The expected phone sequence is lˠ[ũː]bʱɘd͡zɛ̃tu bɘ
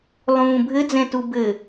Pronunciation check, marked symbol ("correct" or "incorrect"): correct